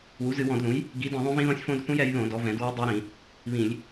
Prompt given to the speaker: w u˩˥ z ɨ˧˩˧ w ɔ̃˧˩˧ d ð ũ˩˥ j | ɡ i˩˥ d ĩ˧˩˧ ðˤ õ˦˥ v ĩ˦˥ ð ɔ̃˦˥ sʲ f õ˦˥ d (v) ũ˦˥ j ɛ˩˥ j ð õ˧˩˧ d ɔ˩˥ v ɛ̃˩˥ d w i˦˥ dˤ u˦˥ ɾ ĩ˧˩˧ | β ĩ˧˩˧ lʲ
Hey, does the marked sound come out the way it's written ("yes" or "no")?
no